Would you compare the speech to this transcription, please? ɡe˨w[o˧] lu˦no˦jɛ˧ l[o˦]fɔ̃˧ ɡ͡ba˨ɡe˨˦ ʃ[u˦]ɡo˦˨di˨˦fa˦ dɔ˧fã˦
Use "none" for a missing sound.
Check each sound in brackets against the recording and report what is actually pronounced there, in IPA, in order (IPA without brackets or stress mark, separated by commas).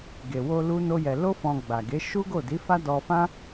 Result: o˧, o˦, u˦